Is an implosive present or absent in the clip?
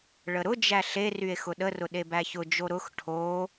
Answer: present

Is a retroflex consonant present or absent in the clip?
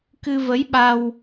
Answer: absent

